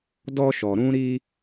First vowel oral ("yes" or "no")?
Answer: yes